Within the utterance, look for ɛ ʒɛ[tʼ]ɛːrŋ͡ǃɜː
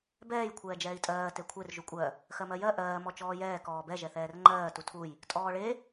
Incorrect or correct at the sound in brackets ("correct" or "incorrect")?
incorrect